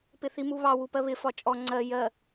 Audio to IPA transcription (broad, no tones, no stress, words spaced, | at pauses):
pɪθimuβɑ wupɜβɪ fɒt͡ʃʼɔ ŋ͡ǀɜ jɜ